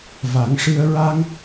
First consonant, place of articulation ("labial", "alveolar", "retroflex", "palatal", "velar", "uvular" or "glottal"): labial